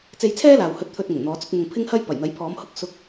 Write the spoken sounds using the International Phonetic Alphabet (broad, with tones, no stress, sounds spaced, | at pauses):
t͡s e˧ j t͡sʰ ɛː˥ l aː˨ w h ɵ˧ t̚ t̪ʰ ɵ˧ t̚ ŋ ʊ˨˩ ŋ n̪ ɔː˨˧ t͡s ʊ˧ k̚ m ʊ˨ ŋ pʰ ɪ˥ ŋ h ɐ˥ j p ɐ˨˩ j n̪ ɐ˨˥ j pʰ ɔː˨˧ m h ʊ˥ k̚ s ʊ˧ k̚